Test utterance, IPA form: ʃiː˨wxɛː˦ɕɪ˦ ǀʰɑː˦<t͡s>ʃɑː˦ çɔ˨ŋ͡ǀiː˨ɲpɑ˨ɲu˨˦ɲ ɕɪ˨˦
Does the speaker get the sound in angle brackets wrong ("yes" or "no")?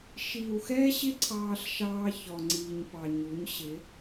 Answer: yes